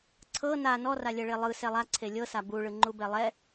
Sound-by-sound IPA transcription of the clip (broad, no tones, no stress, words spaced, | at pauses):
ǀʰɤ na nɔralʲɛɭe lˠɯ sɛlˠaǀʰe lʲɤsa buɭɯ ŋ͡ǃubɛlˠɛ